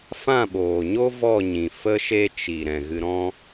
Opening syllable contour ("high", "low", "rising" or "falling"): falling